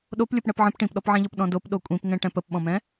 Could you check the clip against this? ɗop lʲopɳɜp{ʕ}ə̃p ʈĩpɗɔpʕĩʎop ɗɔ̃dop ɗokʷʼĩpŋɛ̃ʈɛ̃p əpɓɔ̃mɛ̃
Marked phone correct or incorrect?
correct